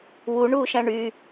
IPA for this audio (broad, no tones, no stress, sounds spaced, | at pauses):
w u ɳ uː ʃ æ̃ ɳ y